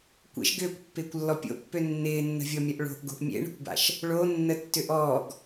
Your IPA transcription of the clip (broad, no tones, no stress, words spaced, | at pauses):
kʷḛʃ ɡʏːkʷpːɪːkʷlːɔ pʲo̰pːø nːɪːnːə̤vʲɔmʲɐʔ ɭo̤ʔɡo̤ʔ mʲḛɳə̤kʷba̰ʃ | ɭonːə tːʏʔɔːɡ